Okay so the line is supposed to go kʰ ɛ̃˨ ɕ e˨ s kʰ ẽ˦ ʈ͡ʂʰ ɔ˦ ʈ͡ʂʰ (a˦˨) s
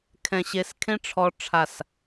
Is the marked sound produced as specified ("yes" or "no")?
yes